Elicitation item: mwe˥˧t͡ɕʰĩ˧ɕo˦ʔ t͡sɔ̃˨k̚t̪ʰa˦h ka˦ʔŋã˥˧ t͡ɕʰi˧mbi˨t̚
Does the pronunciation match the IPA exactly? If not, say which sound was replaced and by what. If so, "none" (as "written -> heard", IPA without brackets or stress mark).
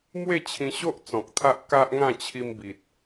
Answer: h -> ʔ